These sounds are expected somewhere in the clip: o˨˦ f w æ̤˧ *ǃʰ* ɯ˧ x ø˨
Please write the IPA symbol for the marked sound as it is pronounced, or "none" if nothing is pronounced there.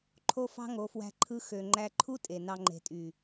ǃʰ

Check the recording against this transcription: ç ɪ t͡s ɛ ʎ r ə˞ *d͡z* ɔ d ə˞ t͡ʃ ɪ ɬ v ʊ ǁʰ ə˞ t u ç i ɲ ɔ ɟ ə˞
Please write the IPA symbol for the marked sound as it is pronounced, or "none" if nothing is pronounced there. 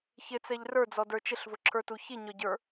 d͡z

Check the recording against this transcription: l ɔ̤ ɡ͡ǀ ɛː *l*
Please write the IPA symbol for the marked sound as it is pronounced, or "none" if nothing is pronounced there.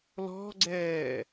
none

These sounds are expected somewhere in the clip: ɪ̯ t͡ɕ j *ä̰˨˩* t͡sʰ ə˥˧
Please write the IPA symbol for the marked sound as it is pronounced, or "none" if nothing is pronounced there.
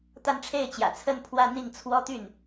ä̰˨˩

